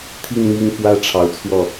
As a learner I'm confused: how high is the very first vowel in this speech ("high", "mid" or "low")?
high